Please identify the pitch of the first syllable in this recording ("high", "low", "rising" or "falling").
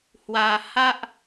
low